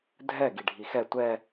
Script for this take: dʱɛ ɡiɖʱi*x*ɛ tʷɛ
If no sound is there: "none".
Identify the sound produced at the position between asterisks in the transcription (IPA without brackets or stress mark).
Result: x